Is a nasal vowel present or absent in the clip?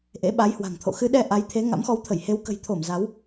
absent